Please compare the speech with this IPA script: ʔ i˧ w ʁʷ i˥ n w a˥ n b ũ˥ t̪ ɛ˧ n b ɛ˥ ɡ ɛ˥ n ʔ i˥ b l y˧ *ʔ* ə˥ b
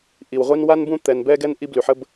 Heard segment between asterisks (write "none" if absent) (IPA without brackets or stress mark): ħ